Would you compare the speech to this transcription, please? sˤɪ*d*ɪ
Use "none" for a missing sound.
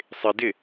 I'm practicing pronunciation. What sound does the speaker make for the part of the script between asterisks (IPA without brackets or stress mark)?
d